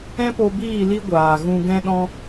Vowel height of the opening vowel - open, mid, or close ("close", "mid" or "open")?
mid